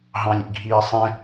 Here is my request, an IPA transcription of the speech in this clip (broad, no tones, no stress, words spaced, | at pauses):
ɦɑ̃lʲḭɡʱiːsˤɛ̃